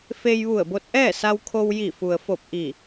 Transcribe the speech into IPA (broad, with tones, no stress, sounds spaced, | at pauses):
f e˧ j ʋ u˧˩ ə̯ b o˧ t̚ ʔ ɛː˥˨ s a˧ w kʰ o˧ w j i˧˩ f u˩ ə̯ f o˧˩ p̚ ʔ i˧˩